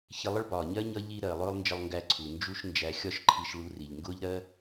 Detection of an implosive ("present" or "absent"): absent